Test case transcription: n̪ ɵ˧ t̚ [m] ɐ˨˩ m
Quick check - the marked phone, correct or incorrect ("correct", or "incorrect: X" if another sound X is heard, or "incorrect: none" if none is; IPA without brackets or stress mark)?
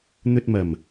correct